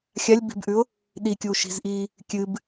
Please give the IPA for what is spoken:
xʲ a lʲ b i̤ b ʔ ʉ ʊ̯ | ɗ i kʲ uː ʃ i̤ z ʔ iː | kʲ ɨ b

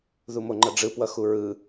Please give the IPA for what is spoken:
ð u m o ŋ͡ǃ ʌ ɖ͡ʐ ɯ p w ʌ x u ɹ ɯ

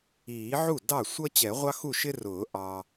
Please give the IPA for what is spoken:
iː˨˩˦ ʕ u˥˩ d ɑ˥˩ sʷ ʌ˥ t͡ɕ ɛ˨˩˦ ʁʷ ɑ˥ x u˥˩ ʃ ɪ˥ r ʊː˨˩˦ ʔ ɑ˨

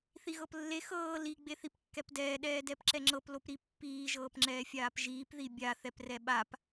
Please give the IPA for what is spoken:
θ i ɣ ɤ p lː e x ɤː l i ɡ͡b e θ i p kː ɛ p d ɛː ɗ ɛː d ɛ p ǁ ɛ ŋ͡ǁ ɤ p l o p ɾ i pː iː ʒ ɤː p ŋ͡ǁ ɛː fʲ aː p ʒ iː p ð i bʲ a θ ɛ p r ɛ ɓ a p

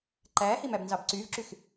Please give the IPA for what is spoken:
ǃ æː h i m æ b n z ɑ b ǀ yː v ǁ y x

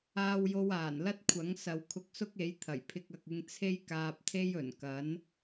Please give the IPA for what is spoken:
aː˥ w j o˥ w aː˨˩ n l ɐ˥ t̚ kʷʰ ɐ˨˥ ŋ s ɐ˨˧ w kʰ ʊ˧ k̚ s ʊ˥ k̚ e˨˥ j t̪ʰ ɐ˨˩ j pʰ ɪ˥ k̚ ɐ˧ k̚ ɪ˥ ŋ t͡sʰ e˥ j k aː˧ p̚ t̪ʰ e˥ j ɵ˨˩ n k ɐ˨˥ n

